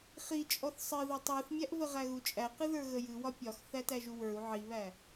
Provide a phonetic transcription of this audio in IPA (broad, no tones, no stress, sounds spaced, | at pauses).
χ i t͡ʃʼ ɔ θ sˤ ɨ ð ɔ tˤ u θ mʲ æ ʔ v ə ʁ æ ɣ u t͡ʃʼ æ q ɨ ð ə˞ ɣ ə j ɨ w ɒ pʲ ɒ x θ æ t æ ʒ u w ə˞ u̯ ʕ i β æ